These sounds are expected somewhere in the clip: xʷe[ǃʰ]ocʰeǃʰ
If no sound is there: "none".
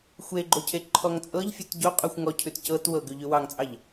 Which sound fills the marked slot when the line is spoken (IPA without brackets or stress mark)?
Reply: ɡ͡ǃ